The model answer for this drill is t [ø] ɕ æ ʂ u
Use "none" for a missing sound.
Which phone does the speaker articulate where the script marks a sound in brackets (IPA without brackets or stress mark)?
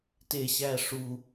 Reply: e